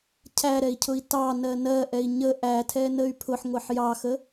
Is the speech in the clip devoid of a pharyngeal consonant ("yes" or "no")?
no